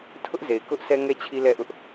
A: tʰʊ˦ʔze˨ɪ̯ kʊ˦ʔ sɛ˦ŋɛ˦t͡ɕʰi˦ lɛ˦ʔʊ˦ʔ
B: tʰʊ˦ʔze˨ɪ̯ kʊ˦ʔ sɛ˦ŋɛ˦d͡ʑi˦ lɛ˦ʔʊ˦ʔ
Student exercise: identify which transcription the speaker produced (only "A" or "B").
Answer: A